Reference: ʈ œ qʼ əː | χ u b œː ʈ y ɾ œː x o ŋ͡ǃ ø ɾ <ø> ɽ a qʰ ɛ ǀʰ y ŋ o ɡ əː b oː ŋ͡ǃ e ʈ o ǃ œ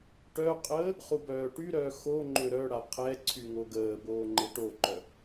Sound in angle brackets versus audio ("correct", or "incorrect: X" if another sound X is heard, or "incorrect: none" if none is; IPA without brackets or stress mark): incorrect: œ